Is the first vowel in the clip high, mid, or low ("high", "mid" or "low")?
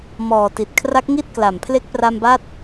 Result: mid